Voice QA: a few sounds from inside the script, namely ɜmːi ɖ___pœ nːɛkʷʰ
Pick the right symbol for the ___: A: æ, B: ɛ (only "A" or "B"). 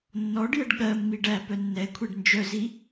A